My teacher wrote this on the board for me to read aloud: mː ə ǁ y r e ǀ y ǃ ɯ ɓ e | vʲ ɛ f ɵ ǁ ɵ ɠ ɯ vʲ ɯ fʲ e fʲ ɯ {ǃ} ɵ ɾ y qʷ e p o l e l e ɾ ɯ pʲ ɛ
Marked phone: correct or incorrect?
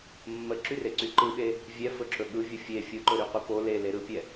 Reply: correct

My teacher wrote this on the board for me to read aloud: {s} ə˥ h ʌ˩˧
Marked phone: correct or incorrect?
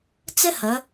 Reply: incorrect: t͡s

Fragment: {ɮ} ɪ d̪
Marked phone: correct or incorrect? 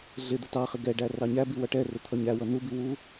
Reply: correct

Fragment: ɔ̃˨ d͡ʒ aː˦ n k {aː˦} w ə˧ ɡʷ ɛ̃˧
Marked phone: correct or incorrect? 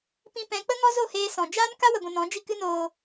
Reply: incorrect: a˦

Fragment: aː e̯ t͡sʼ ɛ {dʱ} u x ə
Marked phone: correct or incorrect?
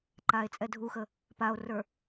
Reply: correct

